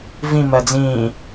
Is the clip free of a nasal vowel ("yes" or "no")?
no